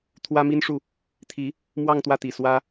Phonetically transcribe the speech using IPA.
t̪ʰwä˥mi˥nʂu˥˩ | t̪ʰi˧˥ | mwɑ˥˧ŋt̪wä˥˩t̪i˨˩ swä˥

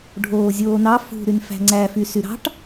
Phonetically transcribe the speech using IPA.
ɖʱoːzʲoːnɑ fṳ ɾynfæ̤ŋ͡ǀæ fysyɾɑ̤ʈ

